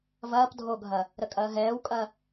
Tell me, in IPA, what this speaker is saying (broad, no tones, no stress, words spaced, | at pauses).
vɐːp dʱoɡʱɐ | ɾəkʼɐːɦɛːwkʼɐ